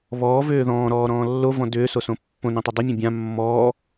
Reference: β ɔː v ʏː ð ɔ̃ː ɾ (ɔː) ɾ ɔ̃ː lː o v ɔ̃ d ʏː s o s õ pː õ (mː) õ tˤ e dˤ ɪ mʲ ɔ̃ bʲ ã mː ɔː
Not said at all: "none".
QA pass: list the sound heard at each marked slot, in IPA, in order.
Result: ɔː, n

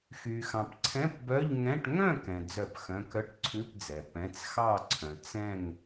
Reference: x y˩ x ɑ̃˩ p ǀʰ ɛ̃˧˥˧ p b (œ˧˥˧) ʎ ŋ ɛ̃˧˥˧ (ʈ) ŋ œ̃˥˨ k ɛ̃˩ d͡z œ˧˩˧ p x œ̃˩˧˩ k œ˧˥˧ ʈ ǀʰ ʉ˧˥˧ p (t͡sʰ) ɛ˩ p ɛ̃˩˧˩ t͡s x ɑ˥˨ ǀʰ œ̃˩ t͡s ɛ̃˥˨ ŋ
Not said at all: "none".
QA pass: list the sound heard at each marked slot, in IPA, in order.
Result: œ˧˥˧, ʈ, d͡z

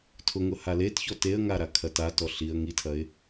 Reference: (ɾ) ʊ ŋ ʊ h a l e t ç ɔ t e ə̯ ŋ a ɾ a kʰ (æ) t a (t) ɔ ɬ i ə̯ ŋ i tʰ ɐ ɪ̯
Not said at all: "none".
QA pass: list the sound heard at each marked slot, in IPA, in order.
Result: tʰ, ɐ, t

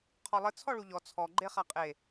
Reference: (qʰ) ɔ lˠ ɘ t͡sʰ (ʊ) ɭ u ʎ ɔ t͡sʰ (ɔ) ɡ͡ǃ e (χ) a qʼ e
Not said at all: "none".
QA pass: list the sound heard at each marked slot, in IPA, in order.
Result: qʰ, ɔ, ɔ, χ

